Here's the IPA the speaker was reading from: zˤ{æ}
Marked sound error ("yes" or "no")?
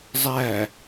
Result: no